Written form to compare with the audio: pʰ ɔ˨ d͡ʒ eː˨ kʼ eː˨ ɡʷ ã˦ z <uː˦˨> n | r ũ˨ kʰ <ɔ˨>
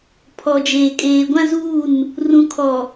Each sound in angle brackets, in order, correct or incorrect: correct, correct

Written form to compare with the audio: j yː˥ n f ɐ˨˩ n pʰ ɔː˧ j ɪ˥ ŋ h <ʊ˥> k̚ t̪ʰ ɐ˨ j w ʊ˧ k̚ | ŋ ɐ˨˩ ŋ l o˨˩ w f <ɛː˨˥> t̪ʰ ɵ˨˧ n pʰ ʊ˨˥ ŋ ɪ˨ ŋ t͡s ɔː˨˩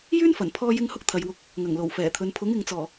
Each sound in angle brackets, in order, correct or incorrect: correct, incorrect

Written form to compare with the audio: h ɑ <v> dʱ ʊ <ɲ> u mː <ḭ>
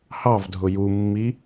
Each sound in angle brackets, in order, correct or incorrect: correct, incorrect, incorrect

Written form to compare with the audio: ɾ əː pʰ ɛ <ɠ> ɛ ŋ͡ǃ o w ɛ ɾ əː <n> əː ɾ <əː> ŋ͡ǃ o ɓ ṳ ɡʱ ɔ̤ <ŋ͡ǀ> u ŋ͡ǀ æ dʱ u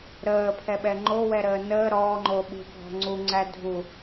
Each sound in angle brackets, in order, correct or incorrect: incorrect, correct, incorrect, correct

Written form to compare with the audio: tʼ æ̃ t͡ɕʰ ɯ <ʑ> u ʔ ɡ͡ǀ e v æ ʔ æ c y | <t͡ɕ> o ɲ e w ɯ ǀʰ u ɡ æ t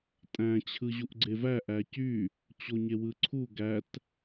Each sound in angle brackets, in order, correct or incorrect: correct, correct

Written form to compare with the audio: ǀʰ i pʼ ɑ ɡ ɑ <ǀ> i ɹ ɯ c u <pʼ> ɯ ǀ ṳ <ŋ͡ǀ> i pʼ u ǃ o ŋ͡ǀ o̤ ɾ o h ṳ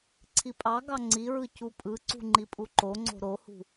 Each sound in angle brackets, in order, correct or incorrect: incorrect, correct, incorrect

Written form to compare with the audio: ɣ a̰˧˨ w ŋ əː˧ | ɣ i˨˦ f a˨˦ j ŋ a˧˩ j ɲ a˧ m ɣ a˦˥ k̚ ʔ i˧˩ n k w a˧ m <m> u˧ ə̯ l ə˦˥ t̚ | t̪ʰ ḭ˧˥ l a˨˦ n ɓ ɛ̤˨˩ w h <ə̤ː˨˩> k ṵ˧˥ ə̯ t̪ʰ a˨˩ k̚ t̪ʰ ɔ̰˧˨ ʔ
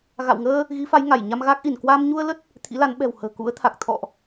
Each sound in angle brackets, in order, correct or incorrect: incorrect, correct

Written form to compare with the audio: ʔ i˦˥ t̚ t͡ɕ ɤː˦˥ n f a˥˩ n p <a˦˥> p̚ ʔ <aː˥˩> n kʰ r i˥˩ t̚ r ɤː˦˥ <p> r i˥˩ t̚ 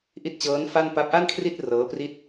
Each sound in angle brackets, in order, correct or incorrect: correct, incorrect, correct

